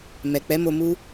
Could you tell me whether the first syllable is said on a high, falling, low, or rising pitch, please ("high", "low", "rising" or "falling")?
low